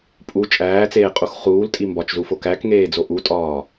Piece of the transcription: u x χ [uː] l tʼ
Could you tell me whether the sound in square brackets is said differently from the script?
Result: no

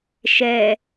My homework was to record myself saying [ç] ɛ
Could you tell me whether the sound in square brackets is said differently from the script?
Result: yes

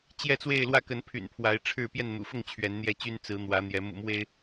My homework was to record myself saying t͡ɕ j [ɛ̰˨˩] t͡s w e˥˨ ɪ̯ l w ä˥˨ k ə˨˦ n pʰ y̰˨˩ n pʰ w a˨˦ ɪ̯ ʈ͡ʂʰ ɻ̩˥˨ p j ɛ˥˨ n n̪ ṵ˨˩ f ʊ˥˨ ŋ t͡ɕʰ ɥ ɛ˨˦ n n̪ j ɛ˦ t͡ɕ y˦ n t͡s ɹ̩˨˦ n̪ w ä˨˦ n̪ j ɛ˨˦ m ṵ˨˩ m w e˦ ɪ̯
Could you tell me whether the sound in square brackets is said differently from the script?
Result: yes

